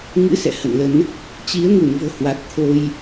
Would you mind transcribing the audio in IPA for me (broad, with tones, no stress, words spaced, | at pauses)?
ŋɨ̰˧˥ sɛ̰˧˨ hə̰˧˨nlə˨˦n | t͡ɕi˨˦ə̯ŋu˧˩nvo̤˨˩ hwa˨˩t̚t̪ʰo˧j